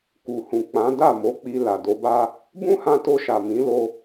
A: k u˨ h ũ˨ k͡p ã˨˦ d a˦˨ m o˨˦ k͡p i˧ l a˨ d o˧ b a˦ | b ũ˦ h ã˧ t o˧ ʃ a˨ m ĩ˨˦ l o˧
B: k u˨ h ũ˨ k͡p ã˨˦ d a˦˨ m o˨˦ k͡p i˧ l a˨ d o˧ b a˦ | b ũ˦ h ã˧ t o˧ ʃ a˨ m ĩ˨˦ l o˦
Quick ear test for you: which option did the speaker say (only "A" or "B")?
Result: A